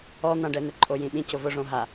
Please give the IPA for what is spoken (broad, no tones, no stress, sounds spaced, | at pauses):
ɔ n̪ ã ɖ ɛ n̪ ɪ ǃʼ o j ĩ ɓ ĩ c ʊ v ʊ ʐ õ ɦ a